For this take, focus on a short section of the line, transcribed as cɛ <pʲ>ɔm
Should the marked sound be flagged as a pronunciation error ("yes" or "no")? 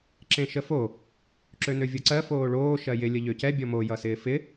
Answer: yes